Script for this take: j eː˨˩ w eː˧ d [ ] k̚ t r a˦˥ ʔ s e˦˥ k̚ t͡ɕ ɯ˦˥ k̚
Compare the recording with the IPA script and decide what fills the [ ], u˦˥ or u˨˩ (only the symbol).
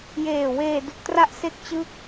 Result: u˨˩